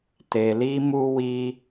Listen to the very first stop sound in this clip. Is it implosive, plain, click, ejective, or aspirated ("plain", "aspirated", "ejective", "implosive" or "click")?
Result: plain